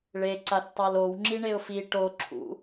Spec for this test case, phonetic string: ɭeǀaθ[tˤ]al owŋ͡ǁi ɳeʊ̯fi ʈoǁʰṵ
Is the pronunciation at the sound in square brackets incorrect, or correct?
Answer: correct